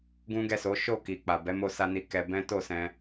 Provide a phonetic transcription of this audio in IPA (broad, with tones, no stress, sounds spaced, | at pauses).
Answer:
ɡ ũ˦ ɡ ɛ˦˨ s o˨˦ ʃ o˦˨ k i˨ k͡p a˨ b ɛ˨˦ m o˧ s a˧ n i˧ k ɛ˧ b ɛ̃˦ t o˦˨ s ɛ̃˧